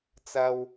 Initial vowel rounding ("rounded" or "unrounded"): unrounded